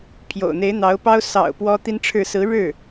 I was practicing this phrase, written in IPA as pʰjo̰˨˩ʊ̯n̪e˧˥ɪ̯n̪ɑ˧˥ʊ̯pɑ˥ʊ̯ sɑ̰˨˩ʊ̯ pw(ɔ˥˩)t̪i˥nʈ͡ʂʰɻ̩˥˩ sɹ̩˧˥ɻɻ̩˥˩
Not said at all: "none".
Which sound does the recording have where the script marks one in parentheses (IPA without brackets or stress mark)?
ɔ˥